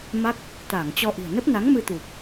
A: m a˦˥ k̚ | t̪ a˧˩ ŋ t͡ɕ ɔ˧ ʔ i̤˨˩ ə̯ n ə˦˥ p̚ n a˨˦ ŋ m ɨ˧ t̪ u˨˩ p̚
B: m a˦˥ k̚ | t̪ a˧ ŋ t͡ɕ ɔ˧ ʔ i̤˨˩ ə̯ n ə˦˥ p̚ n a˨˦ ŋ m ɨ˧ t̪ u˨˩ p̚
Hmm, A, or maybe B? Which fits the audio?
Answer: A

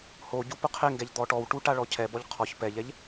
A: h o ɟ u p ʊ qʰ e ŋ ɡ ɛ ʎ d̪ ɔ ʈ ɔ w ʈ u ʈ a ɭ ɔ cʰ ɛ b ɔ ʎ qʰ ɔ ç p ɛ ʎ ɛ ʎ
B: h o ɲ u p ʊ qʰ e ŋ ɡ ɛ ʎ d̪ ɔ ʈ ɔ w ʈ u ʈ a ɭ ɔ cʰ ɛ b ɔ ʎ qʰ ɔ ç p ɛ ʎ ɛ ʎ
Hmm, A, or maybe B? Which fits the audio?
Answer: A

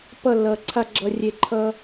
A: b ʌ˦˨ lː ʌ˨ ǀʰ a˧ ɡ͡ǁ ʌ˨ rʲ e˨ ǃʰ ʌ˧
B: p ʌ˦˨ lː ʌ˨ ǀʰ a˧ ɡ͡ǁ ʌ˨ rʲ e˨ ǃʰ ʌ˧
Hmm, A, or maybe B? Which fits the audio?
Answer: B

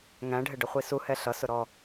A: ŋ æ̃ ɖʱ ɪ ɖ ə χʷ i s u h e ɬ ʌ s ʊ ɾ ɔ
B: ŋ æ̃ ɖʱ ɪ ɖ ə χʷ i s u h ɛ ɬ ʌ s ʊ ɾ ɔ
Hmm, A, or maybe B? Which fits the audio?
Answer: B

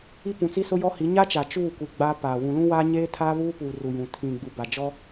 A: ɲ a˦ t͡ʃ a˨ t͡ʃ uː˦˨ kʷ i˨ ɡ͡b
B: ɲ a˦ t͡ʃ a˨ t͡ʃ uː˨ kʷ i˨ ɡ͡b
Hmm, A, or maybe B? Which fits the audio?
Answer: A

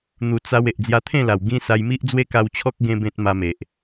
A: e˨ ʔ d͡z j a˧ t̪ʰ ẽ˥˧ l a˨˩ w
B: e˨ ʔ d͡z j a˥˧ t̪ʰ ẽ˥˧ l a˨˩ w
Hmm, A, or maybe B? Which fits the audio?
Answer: A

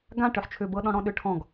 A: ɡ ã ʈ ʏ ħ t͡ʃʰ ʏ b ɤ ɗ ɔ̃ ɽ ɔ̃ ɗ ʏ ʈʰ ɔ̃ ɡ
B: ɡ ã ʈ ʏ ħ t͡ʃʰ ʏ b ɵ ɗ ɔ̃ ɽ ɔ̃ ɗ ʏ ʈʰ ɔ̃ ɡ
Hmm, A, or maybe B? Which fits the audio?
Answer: A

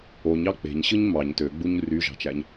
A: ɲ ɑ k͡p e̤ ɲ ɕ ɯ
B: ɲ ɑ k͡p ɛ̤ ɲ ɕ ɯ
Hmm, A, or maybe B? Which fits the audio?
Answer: A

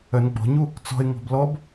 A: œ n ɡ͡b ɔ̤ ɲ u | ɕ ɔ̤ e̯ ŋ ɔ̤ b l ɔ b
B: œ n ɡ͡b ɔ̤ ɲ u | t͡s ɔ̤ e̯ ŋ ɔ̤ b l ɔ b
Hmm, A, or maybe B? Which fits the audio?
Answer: B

